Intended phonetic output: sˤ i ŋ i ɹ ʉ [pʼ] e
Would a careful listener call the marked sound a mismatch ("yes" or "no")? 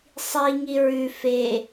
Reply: yes